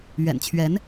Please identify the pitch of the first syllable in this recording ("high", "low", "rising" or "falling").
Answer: low